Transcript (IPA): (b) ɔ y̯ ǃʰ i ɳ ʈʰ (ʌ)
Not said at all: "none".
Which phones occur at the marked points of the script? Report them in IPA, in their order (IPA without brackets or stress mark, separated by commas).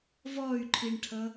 v, ʌ